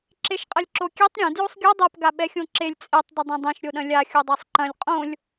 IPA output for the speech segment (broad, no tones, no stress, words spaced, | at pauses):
ǁeʃqʼɐlʲǁokʲetˤ ɾʲɐ̃ djosˤɡʲo dˤop ɡaɓɛxʲõǁelʲ t͡sʼetˤ dɪdˤẽdˤẽʃ ɾʲoɗɐ̃lʲa xʲudˤasˤǃɐ̃lʲ qʼõlʲ